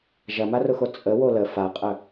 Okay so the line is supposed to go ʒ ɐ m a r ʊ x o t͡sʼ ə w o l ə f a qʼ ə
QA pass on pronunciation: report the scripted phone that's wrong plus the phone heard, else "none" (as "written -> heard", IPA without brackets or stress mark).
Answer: none